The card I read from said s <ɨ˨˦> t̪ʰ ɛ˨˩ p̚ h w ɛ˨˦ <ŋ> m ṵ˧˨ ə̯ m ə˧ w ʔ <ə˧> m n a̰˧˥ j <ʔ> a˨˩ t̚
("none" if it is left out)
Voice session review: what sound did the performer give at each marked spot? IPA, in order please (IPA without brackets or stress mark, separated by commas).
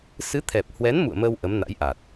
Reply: ɨ˨˦, n, ə˨˦, ʔ